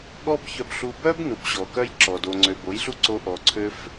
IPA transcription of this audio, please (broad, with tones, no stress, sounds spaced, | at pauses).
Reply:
ɠ ɔ˦ b ç œ˧ b ɬ u˧ b œ˦ b n u˨ b ɕ ɔ˨ k œ˦ j ǁ ɔ˨ d o˨ ŋ͡ǀ ø˨ b o˨˦ j ɬ u˦ ǀ o˧ ʔ ɔ˨ ǀʰ ø˦ f